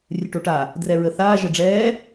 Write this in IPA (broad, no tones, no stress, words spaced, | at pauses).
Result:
rʲɨʈoʈa | drɛɹəθaː ʒəɖ͡ʐɛː